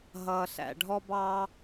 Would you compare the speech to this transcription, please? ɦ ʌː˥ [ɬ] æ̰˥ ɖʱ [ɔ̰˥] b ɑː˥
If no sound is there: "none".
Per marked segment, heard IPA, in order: ɬ, ɔ˥

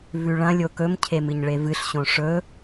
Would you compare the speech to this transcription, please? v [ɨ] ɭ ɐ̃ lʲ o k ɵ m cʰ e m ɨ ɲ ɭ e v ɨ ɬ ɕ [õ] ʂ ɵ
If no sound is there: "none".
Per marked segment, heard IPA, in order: ʉ, õ

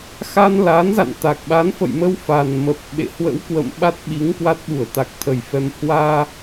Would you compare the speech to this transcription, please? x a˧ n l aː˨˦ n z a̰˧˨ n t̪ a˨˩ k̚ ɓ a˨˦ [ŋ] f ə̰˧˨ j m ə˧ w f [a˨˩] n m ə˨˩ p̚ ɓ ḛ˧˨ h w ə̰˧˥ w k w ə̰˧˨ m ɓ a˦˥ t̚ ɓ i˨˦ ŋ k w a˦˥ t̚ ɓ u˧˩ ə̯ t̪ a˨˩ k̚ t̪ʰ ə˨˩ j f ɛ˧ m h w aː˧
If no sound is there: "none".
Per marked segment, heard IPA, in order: n, a˨˩

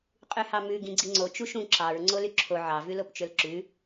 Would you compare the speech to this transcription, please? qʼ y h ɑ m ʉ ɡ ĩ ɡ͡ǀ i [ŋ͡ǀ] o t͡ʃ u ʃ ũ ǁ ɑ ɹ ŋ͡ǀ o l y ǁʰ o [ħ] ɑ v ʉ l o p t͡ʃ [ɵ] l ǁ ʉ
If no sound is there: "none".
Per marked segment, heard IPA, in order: ŋ͡ǀ, ʕ, ɵ

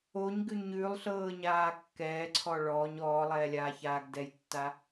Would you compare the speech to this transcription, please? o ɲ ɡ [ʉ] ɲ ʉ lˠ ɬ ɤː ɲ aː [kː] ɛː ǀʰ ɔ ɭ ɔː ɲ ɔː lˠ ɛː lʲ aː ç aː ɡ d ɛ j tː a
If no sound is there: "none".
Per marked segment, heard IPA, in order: ʉ, kː

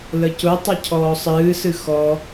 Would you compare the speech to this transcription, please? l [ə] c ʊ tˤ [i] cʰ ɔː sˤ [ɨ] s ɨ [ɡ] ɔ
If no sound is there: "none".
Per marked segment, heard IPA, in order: ə, ɨ, ɨː, x

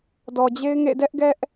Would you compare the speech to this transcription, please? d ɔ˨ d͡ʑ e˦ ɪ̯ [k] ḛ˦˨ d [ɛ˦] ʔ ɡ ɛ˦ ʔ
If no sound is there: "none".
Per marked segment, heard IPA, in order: ŋ, ɛ˦

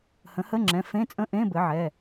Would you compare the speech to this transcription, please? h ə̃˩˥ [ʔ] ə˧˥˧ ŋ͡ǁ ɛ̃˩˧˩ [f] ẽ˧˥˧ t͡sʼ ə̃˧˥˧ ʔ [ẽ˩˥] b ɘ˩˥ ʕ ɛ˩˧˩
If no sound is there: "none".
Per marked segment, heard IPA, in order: h, f, ẽ˧˥˧

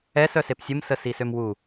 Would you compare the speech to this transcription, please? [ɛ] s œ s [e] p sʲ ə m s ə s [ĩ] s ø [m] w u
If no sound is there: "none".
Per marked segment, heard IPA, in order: ɛ, e, i, m

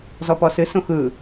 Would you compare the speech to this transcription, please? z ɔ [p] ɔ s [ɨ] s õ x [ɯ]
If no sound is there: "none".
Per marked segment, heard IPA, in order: p, ɨ, ɯ

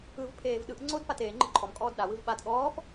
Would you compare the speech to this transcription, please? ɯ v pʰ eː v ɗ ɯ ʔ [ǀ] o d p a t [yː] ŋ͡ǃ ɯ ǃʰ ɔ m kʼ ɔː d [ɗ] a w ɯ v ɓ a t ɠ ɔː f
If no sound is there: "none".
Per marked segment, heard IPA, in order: ŋ͡ǀ, eː, ɗ

